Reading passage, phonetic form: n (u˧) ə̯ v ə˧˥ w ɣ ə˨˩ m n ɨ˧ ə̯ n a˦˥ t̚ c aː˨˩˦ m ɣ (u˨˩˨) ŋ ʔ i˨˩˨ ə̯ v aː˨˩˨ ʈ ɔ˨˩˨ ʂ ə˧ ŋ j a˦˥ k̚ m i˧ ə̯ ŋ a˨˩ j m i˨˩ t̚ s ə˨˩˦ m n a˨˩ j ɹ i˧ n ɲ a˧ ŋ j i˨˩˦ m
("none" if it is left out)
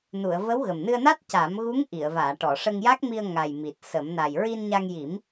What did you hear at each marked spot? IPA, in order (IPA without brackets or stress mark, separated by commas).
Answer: u˨˩˨, u˧˥